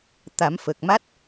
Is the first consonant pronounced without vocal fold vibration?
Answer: yes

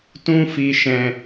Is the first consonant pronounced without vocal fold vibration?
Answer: yes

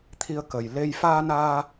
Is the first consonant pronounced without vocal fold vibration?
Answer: yes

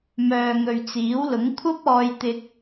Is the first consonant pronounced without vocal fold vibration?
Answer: no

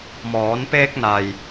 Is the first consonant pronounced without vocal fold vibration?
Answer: no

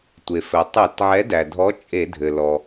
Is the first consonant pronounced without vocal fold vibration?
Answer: yes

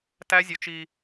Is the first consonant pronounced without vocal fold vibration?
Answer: yes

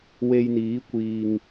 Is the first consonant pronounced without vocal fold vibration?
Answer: no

